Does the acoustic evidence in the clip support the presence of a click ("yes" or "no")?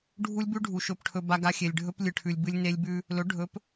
no